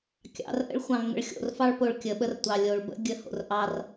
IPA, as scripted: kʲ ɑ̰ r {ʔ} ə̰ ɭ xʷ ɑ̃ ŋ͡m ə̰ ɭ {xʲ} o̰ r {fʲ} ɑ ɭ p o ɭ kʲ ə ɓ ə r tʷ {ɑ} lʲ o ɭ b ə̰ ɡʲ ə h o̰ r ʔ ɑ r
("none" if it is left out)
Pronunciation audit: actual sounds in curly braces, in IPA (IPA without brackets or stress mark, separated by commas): ʔ, xʲ, f, ɑ